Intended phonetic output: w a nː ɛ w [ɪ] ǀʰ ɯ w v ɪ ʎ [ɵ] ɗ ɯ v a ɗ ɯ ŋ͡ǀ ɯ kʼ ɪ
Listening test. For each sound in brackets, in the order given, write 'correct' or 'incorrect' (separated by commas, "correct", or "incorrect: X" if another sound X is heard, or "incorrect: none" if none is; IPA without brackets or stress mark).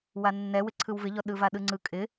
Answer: correct, incorrect: ɔ